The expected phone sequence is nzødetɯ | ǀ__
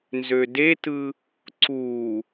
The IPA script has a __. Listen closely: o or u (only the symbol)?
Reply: u